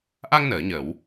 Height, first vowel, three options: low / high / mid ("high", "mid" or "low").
low